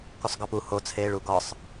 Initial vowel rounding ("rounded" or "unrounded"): rounded